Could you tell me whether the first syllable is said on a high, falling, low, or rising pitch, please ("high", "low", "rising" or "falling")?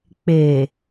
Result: low